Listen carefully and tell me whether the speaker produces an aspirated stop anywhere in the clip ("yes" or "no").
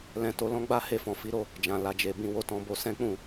no